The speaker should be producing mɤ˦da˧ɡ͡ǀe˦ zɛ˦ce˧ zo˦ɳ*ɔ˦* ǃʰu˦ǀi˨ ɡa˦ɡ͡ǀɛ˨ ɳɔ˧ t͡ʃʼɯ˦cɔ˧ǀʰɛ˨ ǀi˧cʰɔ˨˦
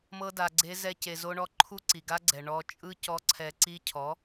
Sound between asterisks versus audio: correct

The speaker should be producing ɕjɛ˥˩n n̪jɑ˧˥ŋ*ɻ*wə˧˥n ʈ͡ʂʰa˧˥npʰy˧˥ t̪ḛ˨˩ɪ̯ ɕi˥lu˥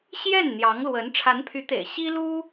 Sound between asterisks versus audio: incorrect: l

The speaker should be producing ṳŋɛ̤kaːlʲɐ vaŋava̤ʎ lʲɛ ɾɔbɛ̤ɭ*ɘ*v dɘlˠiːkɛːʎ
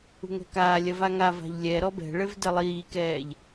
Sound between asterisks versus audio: correct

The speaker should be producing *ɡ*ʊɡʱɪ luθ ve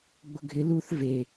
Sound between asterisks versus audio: incorrect: ɡ͡b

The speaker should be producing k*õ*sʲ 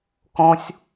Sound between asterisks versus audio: correct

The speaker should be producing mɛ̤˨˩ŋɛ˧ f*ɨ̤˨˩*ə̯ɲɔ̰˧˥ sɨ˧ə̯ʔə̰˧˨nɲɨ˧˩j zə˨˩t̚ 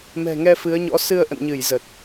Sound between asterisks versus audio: incorrect: ɨ˨˦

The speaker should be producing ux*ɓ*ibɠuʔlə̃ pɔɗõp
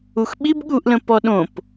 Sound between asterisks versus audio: correct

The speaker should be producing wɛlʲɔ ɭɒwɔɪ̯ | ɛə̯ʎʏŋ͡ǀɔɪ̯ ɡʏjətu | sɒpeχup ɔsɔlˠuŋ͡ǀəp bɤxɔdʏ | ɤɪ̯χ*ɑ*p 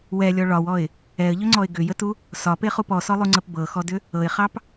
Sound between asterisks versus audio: correct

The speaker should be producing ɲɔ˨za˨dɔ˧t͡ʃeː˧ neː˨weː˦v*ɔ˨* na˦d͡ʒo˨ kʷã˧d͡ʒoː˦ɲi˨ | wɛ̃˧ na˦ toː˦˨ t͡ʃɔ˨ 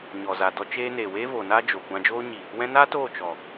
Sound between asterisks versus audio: incorrect: o˨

